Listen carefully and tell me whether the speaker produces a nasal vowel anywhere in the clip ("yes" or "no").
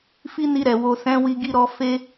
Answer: yes